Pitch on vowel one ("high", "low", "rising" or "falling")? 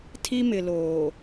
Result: high